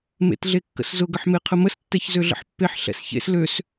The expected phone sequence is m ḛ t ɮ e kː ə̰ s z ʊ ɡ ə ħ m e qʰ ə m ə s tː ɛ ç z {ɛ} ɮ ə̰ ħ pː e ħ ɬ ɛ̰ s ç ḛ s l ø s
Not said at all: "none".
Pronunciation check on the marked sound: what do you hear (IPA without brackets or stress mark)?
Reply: ø